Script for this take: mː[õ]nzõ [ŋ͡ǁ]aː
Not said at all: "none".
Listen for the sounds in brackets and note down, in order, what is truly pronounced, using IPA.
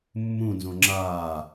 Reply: ũ, ŋ͡ǁ

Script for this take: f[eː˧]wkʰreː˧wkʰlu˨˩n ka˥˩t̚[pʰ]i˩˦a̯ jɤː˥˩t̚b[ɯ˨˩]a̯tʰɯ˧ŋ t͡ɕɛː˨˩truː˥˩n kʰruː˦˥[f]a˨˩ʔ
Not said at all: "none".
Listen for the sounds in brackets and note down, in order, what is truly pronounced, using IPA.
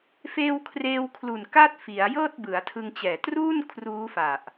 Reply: eː˧, f, ɯ˩˦, f

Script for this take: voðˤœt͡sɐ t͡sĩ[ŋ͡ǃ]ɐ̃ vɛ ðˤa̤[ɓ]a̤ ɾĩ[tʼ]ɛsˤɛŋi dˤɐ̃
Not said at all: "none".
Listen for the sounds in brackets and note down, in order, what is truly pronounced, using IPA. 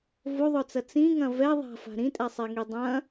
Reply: ŋ, f, tʼ

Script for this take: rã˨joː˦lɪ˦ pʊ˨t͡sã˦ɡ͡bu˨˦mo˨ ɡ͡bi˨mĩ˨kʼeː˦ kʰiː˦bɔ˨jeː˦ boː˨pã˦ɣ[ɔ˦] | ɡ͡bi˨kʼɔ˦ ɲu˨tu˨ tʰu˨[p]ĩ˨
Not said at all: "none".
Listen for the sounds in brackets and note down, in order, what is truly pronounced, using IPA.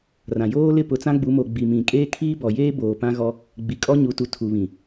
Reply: ɔ˦, β

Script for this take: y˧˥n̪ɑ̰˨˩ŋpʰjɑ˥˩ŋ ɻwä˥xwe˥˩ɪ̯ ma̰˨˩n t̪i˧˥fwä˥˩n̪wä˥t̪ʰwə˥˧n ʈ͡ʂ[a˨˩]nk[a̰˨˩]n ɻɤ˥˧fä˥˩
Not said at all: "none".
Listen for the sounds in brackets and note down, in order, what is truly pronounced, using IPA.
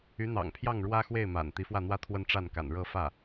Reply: a˥˩, a̰˨˩

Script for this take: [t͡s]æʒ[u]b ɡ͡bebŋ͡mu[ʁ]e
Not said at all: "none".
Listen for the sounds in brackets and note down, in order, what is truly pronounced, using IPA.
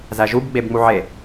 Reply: z, u, ʕ

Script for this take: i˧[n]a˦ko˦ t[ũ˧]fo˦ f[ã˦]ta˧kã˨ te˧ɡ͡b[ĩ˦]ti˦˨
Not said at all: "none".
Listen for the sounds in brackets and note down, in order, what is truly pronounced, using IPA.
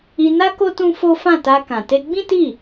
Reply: n, ũ˦, ã˦˨, ĩ˦

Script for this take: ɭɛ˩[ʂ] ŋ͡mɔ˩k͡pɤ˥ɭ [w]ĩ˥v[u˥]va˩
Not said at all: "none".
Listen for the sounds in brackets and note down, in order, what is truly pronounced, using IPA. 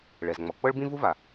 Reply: z, b, u˥

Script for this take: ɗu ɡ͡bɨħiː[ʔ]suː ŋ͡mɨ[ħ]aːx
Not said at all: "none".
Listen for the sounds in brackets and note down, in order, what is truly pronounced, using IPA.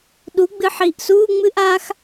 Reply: ʔ, ʔ

